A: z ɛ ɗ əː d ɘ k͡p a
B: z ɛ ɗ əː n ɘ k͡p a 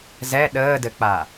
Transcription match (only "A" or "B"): A